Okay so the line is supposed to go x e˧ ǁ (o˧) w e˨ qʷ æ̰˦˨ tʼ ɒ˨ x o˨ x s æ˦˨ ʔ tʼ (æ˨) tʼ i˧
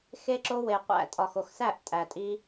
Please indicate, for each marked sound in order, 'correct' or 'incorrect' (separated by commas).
correct, correct